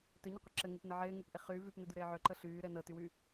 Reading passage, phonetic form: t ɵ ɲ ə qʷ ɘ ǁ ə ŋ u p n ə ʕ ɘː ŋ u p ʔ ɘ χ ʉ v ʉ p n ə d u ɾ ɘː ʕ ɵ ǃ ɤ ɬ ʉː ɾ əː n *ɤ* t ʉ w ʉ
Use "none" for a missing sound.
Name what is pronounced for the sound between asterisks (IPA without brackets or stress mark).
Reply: ɤ